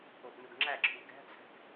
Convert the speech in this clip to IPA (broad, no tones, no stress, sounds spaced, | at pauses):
o ʔ n u ɡ ŋ͡ǁ æ ǁʰ u ɡ æ̤ t͡sʰ æ̤ ɡ